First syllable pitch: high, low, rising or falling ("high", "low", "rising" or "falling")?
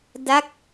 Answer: falling